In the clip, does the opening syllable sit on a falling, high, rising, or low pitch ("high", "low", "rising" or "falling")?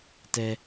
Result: high